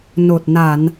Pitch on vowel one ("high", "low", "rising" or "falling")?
low